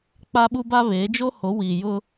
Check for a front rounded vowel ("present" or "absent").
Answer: absent